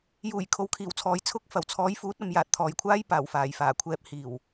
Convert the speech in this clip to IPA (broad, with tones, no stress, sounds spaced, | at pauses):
j uː˨˩ j kʰ o˨ w kʰ iː˨˩ w t͡sʰ ɔː˨ j t͡sʰ ʊ˧ k̚ f ɐ˨˩ w t͡sʰ ɔː˨˧ j f uː˨˥ t̚ ɐ˨ m j aː˨ t̚ t̪ʰ ɔː˨ j kʷʰ aː˥ j p aː˨˩ w f aː˨˩ j f aː˨˩ kʷʰ ɛː˧ p̚ h iː˨˩ w